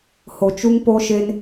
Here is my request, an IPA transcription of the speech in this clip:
ho˨t͡ʃu˦ŋpo˦ʃe˦n

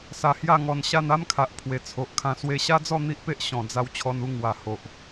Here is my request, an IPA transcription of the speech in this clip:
sa˧hja˥˧ŋɔ˧nɕa˥˧n a˦mkʰa˨ʔ pʰwe˨˩t͡sʰo˨ʔkʰã˧ swe˧ɕa˦d͡zɔ˥˧ n̪i˦ʔpe˦ʔ ɕɔ̃˨˩ d͡za˧w t͡ɕʰɔ˧nu˥˧ ŋwa˨˩ ho˨ʔ

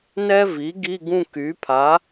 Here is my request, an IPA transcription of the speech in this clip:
nɛ˥vi˩˥ ɡi˧˥˧ɡũ˥˧ky˩˥pʰa˩˥

